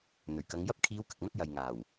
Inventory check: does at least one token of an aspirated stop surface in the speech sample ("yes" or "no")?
yes